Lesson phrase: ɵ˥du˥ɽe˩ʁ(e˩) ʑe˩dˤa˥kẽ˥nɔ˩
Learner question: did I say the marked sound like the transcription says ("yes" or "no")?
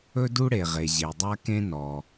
yes